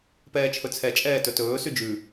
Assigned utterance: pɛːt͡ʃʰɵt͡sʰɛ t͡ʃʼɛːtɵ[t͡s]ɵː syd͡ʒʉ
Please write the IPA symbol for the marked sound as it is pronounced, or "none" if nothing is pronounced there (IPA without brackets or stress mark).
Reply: t